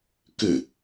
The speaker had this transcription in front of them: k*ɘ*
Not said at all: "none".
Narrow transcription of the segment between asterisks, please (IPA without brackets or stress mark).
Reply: ɘ